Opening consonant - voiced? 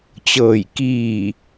no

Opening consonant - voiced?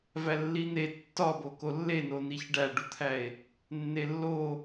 yes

